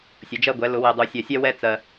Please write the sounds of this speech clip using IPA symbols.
sʲ ʊ˩˥ d͡ʒ ɜ˦ ɡʷ ɛ˩˥ l ʊ˨˩˦ w ɛ˨ dˤ u˨˩˦ sʲ ɜ˨ sʲ ɛ˦ w ɛ˦ t͡s ɜ˨

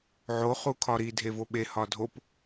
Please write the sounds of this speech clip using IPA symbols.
ʕ o χ u kʰ ɒ ɾ i dʱ e v o ɓ e h ɒ dʱ o p

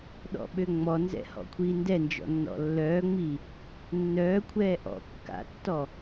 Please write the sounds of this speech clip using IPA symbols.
ɗ ɔ̰ ɓ ø ŋ͡m ɔ n z ɛ̰ h ɔ̰ kʷʰ iː n d ɛ n d͡ʒ ɔ̰ nː ɔ̰ lː œː ŋ͡m i | nː œː kʷʰ ɛː ʔ ɔ̰ kː a̰ tː ɔ

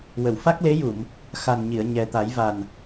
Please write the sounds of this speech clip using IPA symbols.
w ə˨˩˨ w f a˦˥ k̚ l e˧˥ j u˨˩˨ m | x a˨˩ n ɲ i˨˩˨ ə̯ ɲ ɛ˨˩ t̪ a˨˩˦ j v a˨˩ n

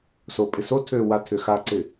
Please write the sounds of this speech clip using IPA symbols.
s oː pʼ ɪ s o tʰ øː w a tʰ ʏ x a ǀ ɪ

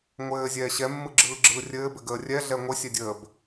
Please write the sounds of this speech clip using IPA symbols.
ŋʷ ɘː zʲ ɛː ɕ ɛ mː ɯ ɡ͡ǁ ɯː ɡ͡ǁ ɯː rʲ ɘː b ɘ ɡ əː rʲ ɛ ɮ ɛ ŋʷ ɘ sʲ ɛ dʲ əː b

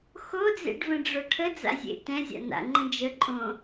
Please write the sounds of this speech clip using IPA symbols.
x o d͡z ḛ ɖ v ə̃ ɖ͡ʐ o ʈʰ ə d͡z a̰ zʲ ḛ t ɛ̃ zʲ a̰ n a̰ ŋ͡ǃ ə̃ d͡ʒ ə ǃʼ õ

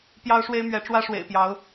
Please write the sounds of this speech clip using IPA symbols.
p j ɑ˦ ʊ̯ ʂ w e˦ ɪ̯ m ɥ ɛ˨˦ ʈ͡ʂ w ä˦ ʂ w ḛ˨˩ ɪ̯ p j ɑ˨˦ ʊ̯

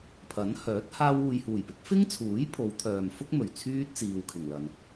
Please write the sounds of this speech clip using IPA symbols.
pʰ ɐ˨˥ n h œː˨˥ t̚ h aː˧ w uː˨ j h uː˨˩ j p ɪ˨˥ k̚ f ɪ˥ ŋ t͡sʰ uː˨˥ j pʰ o˨˧ w t̪ʰ œː˨ m f ʊ˥ k̚ m ɵ˨˩ ɥ t͡sʰ yː˥ t̚ t͡s iː˨ w kʰ ɪ˨˩ ŋ l ɐ˨ n

